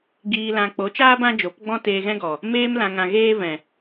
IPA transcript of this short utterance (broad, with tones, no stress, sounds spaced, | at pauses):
ɡ iː˨ l ã˨ k͡p o˨˦ t͡ʃ aː˦ b ã˦ d͡ʒ o˨˦ p ɡ͡b ɔ̃˦ t eː˧ ɣ ɛ̃˦ ɡ ɔ˨ | m eː˧ m l ã˨ ŋ ã˨ ɣ eː˦ v ɛ̃˨